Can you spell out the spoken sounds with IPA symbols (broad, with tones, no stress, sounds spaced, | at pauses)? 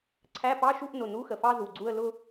ǀʰ æ˧˥˧ p ɑ˧˥˧ ʃ u˥˧ ʔ n ʊ˩˧˩ n u˧˥˧ x ə˩ f ɑ˥˧ z u˩˧˩ ɡ͡ǀ u˥˧ ə̯ l ʊ˥˧